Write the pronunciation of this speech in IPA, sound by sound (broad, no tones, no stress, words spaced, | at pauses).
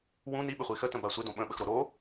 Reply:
wũ ni ɓɪχʷixə tə̃basʷɪdõ ɓə̃ɓəxɾo ɾo